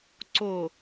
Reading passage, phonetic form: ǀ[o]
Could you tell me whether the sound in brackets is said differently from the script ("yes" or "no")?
no